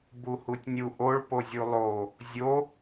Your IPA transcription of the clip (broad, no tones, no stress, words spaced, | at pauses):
buhutʲnʲu ʔoɭpozʲu lˠo | zʲo